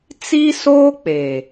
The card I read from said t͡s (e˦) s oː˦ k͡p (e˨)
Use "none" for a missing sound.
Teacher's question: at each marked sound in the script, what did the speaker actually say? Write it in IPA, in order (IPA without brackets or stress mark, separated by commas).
i˦, eː˨